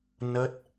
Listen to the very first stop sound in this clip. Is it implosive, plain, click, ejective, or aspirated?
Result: plain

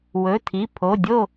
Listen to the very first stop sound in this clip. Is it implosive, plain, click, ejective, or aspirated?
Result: aspirated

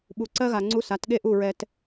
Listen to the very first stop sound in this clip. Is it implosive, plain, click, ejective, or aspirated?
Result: implosive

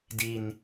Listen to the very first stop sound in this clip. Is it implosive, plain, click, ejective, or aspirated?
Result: plain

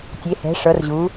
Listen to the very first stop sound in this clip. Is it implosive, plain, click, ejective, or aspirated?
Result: plain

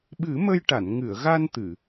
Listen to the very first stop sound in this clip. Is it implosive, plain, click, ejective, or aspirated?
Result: implosive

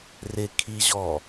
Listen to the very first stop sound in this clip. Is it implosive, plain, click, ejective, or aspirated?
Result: aspirated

